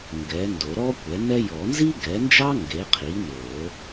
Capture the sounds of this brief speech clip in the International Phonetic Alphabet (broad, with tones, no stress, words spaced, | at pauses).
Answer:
ŋɡɛ˩˥ ndo˨˩˦ɾɔ˥kʷɛ˩˥nɛ˥ jɔ˨˩˦nzi˥ ɡɛ˩˥nd͡ʒɑ˥ ŋɡe˩˥ qʰi˩˥no˨˩˦